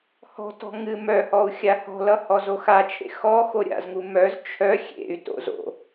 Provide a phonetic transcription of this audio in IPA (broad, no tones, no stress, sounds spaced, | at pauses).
h ɔ̤ t ɔ̤ ŋ ɨ m œ h ɔ u̯ xʲ a h ɔ̤ l ʌ h ɔ z o x a t͡ʃʰ ḛ x ɔ x o ɾʲ a̰ z ŋ u m œ z t͡ʃʰ œ xʲ ḛ y̯ t o̰ z o̰